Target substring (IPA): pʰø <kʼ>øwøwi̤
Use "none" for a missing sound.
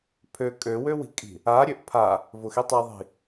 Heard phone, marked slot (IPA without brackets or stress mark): kʼ